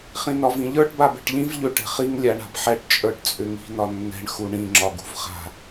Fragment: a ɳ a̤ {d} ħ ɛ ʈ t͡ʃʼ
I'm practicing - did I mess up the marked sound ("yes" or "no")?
yes